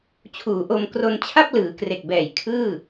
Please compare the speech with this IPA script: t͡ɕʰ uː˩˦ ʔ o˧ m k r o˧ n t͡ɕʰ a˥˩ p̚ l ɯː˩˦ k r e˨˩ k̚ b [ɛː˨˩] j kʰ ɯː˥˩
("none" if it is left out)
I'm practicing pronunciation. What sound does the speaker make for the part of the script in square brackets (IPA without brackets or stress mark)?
ɛː˨˩